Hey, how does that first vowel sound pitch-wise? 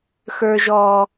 low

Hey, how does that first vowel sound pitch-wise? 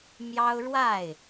high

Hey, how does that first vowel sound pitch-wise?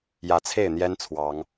rising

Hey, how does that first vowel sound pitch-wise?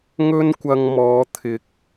high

